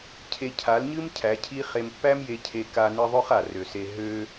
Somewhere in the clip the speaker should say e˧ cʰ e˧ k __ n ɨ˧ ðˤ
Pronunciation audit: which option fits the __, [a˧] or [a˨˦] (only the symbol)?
a˧